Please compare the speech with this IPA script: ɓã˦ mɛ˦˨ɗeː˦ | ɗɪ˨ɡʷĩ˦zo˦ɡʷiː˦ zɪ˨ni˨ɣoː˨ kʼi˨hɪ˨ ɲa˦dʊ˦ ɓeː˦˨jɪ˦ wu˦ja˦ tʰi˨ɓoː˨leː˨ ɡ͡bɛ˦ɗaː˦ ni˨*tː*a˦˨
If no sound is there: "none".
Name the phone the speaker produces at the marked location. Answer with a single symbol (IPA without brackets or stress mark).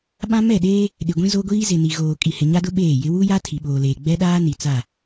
t͡s